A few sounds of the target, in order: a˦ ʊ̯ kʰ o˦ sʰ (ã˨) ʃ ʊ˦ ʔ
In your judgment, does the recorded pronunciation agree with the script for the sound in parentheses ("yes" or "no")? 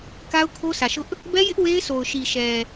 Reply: no